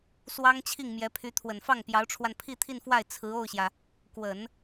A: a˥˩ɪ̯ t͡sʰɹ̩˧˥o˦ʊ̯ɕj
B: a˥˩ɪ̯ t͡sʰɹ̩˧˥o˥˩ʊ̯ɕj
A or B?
B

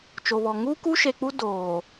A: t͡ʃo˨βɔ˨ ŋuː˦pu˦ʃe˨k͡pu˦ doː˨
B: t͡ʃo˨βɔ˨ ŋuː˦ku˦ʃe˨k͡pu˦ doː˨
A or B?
B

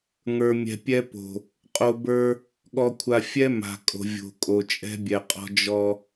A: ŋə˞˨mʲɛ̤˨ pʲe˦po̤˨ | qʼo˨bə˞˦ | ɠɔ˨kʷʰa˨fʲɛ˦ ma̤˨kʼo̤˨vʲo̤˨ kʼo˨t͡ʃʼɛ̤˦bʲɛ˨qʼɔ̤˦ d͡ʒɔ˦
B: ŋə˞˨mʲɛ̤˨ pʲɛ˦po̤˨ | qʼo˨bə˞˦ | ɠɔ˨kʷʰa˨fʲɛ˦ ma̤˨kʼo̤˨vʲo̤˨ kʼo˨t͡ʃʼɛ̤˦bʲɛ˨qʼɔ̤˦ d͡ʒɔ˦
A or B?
B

